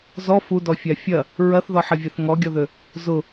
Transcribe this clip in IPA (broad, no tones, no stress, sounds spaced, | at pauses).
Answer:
z ɔ f u d ɔ fʲ a fʲ ɐ | ɹ ɐ θ ð ɔ ħ ɐ vʲ ɛ θ ŋ ɔ ɡʲ ɔ ð ø | z ʊ